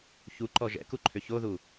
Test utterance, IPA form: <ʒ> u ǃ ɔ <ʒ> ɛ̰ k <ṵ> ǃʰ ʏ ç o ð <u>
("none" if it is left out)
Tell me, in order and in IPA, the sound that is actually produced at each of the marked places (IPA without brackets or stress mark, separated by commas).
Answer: ç, ʒ, u, u